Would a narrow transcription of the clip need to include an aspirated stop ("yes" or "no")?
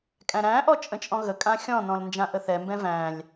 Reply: no